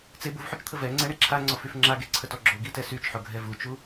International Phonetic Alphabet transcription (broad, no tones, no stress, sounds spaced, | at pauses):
t͡s e b u v ħ o t͡ʃ t̪ʰ ə v ɛ ŋ͡ǀ ɛ ɳ e ǁʰ a ŋ͡ǀ ɔ f y f ŋ͡ǁ a ɡ e ǀʰ ə t ɔ ɡ͡ǁ o ɡ i t ɛ s y t͡ʃ ħ o ɡʱ ɛ v u t͡ʃ u